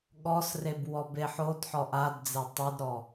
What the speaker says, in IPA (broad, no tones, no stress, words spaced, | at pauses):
ɠɔsreb wɔbeħodħɔ ʔadd͡ze tˤidɾɔ